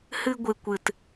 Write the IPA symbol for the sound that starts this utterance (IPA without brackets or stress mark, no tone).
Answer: h